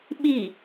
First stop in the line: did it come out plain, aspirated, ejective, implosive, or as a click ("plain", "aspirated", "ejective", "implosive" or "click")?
implosive